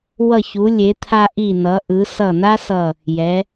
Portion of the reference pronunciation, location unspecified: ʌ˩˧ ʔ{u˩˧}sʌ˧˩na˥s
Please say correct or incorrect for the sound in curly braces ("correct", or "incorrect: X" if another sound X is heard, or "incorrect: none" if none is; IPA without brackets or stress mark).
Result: incorrect: ɯ˩˧